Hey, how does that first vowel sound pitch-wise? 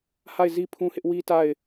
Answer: falling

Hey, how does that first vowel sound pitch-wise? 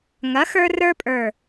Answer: rising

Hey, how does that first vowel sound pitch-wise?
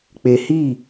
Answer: low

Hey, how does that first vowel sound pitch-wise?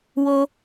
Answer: high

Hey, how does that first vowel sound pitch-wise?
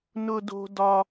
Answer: high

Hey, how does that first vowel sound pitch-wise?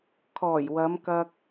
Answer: low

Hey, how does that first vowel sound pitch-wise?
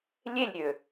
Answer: falling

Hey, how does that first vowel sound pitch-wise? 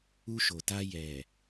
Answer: high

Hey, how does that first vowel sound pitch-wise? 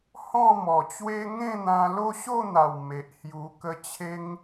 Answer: falling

